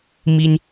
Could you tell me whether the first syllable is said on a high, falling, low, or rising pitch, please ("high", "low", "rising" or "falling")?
high